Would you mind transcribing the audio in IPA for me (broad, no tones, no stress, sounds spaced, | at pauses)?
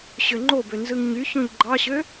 ɕ ø ŋ͡ǃ o b ø n z ɯ ŋ ɲ y ç õ ʎ ɡ͡ǃ ɑ ɕ ø